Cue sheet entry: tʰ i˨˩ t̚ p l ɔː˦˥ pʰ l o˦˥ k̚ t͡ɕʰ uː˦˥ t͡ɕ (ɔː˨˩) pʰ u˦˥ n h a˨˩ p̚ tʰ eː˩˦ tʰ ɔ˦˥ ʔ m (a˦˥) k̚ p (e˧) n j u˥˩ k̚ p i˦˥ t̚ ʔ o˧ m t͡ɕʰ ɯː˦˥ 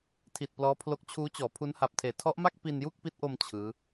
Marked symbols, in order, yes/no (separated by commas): no, no, no